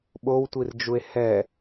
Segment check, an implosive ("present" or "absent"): present